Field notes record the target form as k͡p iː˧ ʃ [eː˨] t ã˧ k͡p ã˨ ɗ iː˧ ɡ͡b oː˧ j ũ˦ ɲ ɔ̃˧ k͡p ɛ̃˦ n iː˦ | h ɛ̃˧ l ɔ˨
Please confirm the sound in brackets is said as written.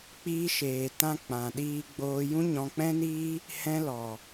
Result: yes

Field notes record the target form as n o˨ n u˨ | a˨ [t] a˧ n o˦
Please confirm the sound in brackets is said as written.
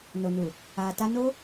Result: yes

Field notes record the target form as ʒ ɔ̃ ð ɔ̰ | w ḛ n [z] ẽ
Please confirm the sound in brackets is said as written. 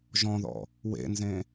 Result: yes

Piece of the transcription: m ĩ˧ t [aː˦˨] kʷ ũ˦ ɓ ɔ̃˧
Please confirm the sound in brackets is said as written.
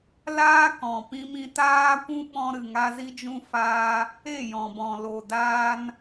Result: no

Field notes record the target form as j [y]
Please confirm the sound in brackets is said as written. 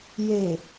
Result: no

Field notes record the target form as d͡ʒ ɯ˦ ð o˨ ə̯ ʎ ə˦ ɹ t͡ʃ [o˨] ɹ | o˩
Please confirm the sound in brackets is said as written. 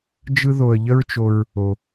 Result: yes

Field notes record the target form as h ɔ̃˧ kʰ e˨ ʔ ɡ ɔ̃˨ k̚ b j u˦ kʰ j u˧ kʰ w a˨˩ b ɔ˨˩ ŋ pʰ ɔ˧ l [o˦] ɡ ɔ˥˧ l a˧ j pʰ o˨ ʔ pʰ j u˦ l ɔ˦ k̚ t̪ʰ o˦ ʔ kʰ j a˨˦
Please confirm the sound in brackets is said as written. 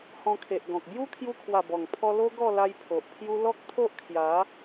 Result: yes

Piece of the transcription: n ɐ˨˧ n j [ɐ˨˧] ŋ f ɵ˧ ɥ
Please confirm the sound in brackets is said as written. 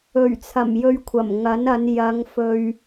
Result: yes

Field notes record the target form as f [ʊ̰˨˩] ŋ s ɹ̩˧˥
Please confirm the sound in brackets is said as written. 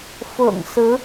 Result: yes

